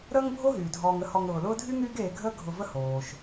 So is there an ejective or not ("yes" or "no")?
no